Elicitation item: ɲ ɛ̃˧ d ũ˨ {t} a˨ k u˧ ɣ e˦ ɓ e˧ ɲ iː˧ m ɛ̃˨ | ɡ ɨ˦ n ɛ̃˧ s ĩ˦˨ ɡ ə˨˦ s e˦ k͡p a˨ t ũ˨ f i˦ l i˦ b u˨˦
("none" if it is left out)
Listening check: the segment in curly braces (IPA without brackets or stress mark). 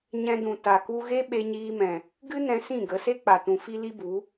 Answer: t